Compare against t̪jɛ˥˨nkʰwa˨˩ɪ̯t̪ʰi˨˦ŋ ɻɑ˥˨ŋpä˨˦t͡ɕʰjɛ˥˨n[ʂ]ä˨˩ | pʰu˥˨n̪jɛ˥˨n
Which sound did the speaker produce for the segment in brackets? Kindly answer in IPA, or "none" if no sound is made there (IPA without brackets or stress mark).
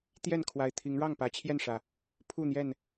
ʂ